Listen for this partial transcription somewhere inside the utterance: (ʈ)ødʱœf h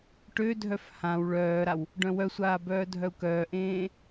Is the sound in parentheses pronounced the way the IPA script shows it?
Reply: yes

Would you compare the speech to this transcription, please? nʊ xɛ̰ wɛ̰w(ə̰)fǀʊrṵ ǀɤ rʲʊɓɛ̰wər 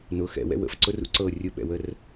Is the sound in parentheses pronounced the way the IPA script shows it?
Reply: yes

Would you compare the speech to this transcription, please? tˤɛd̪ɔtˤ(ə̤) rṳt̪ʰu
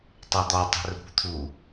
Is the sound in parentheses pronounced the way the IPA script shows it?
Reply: yes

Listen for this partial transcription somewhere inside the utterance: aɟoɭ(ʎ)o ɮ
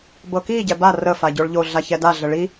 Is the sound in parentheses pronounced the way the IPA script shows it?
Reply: yes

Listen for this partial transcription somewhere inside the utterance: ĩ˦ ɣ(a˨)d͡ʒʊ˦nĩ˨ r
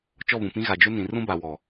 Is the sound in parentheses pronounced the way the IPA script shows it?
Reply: yes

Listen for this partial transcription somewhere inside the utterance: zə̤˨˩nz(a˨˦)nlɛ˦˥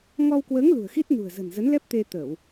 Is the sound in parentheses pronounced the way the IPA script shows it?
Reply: no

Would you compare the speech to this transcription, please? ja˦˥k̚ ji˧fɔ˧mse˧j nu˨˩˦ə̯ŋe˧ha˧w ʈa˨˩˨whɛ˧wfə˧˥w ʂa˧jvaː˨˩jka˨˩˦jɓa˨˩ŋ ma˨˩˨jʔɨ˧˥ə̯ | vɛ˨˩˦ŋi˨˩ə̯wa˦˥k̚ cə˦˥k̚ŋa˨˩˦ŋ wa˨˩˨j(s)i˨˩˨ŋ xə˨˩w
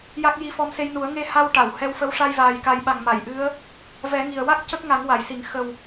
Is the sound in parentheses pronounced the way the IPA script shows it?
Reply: yes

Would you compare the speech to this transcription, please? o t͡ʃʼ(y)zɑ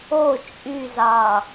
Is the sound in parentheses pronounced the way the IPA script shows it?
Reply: yes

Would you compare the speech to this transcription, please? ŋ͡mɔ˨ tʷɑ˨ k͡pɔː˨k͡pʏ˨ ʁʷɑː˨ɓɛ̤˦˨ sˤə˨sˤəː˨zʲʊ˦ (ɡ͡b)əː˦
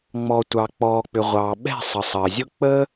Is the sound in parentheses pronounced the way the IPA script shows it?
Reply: no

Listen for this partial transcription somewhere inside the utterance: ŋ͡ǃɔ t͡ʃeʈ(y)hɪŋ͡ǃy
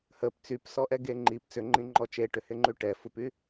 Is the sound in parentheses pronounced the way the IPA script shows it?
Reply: no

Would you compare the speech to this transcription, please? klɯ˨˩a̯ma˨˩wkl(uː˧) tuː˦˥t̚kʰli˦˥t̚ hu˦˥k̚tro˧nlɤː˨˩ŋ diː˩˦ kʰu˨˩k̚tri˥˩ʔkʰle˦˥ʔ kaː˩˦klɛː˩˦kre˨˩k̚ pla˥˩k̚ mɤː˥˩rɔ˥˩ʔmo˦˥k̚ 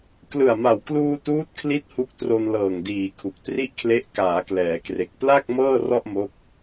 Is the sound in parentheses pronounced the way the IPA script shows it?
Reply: yes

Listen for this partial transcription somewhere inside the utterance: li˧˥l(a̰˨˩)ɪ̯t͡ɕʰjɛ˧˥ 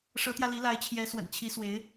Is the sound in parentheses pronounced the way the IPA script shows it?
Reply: no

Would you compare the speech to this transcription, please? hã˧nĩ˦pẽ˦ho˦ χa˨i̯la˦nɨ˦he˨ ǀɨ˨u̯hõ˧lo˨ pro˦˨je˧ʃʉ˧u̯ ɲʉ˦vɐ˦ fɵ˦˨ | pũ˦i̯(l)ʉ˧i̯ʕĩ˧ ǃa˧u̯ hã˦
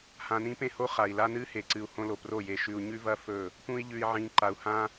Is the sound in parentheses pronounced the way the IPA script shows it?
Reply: no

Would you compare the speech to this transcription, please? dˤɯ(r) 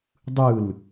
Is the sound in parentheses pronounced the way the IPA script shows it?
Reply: no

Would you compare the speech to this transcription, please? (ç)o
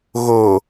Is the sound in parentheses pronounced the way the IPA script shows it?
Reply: no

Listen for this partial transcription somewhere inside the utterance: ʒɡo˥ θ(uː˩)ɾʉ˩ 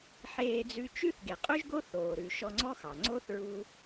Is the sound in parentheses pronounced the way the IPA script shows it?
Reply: no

